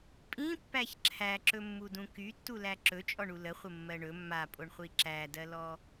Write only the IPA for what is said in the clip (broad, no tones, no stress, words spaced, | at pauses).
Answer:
pʼĩpːæç ǁʰæǁɵmːudũ kytːulæ ǁɵt͡ʃʼɔɳu ləχʷəmːɜ ɳɵ mːapʼoɳχʷi ǁædɜlɔ